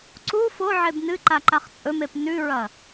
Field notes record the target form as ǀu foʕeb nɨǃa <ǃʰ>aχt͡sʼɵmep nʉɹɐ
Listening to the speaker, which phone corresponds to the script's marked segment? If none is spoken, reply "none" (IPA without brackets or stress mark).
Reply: ǃ